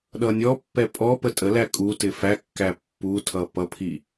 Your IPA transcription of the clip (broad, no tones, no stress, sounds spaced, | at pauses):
ɗ ʌ nʲ ɔ pː ɛ pʼ ɔ p ə tʼ ə l æ kʼ u t ɪ f æ kː æ pː u tʰ ʌ p ʌ pʰ i